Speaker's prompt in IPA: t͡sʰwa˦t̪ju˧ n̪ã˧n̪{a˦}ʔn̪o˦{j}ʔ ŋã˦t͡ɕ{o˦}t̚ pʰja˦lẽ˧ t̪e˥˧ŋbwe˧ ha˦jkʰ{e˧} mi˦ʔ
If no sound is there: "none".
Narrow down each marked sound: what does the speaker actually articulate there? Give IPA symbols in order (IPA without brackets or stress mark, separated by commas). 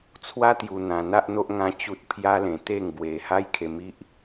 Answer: a˦, none, u˦, e˧